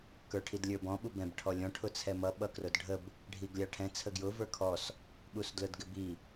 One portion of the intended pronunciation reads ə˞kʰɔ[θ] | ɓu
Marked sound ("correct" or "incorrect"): incorrect